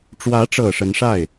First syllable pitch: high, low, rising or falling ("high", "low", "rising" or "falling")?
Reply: rising